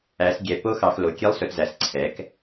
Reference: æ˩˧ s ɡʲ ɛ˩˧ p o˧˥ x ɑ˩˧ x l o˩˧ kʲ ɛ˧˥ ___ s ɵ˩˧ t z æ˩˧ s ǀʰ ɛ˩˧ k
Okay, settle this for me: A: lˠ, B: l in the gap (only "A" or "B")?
A